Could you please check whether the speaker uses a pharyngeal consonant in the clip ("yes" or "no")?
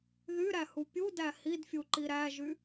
no